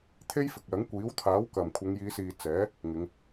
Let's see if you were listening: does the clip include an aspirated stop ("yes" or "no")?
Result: yes